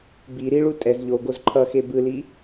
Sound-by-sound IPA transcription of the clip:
b i ɾ i ɭ u tʼ ɛ z ʎ o ɡ o z ǃʰ ʌ x e b ɯ l i

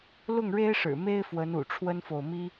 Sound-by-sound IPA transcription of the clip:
l ʊ˥˨ ŋ ɻ e˦ ɪ̯ ʂ ɻ̩˨˩ m e˦ ɪ̯ f w ə˨˦ n ṵ˨˩ ʈ͡ʂʰ w ə˦ n f o˨ ʊ̯ m i˦

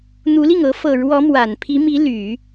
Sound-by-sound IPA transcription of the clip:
n̪ u˧˥ l i˥˩ ŋ ɤ˧˥ f ɤ˨˩ ɻ w ɔ˧˥ m w a˨˩ n pʰ i˧˥ m i˧˥ l y˨˩˦

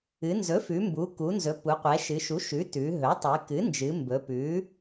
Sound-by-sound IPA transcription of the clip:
ɨ˩˧ n z ɵ˩˥ f ʉ˩˧ m b u˩˧ k u˩˧ n z ɵ˩˧ p u˩˧ qʷ ɛ˩˧ ʃ ɨ˩˧ ʃ u˩˥ ʃ ʉ˩˥ t ʉ˩˧ ɦ ɵ˩˥ tˤ ɨ˩˧ k ɨ˩˥ n d͡ʒ ɨ˩˧ m b ɵ˩˧ p ʉ˩˥

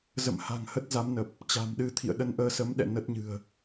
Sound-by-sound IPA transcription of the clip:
z ə̰˧˨ m h a̤˨˩ ŋ h ə˦˥ t̚ z a˨˦ m n ə˨˩ p̚ | t͡ɕ a̤˨˩ m ɗ ɨ˧ t̪ʰ ḭ˧˨ ə̯ ɗ ə˧ n ʔ əː˧ s ə˨˦ m ɗ ɛ̰˧˨ n ə˦˥ t̚ ɲ ɨ̤˨˩ ə̯

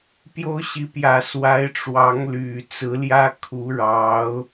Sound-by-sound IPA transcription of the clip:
p j o˥ ʊ̯ ɕ i˧˥ p j ä˨˩ s w a˧˥ ɪ̯ ʈ͡ʂ w ɑ˧˥ ŋ l y˨˩ t͡s ɹ̩˧˥ l j ä˥ kʰ u˧˥ ɻ ɑ˧˥ ʊ̯

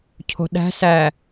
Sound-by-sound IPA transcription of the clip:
cʰ o̤ ɗ æ̤ s æ

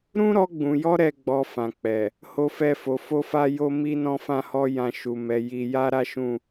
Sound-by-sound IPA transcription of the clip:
ɾ ũ˦ ɾ ɔ˧ ɡ͡b ũ˨ j ɔ˧ ɾ ɛ˦ ɡ͡b ɔ˧ f ã˨ k͡p ɛ˨ | h o˦ f ɛ˦˨ f o˨˦ f o˦ f a˦ j o˦ m i˦ n ɔ̃˦ f ã˦ h ɔ˦ j ã˧ ʃ u˨ m ɛ˨˦ j i˧ j a˦ ɾ a˦ ʃ ũ˦˨

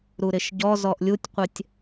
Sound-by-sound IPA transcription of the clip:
ɾ u ɾ ɪ ʃ ɟ ɔ z ɔ ʔ lʲ u tʲ qʷ ɪ tʲ

